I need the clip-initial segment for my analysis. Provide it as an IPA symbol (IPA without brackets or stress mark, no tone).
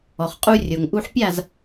ɔ